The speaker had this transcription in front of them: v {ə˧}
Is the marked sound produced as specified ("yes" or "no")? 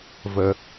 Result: yes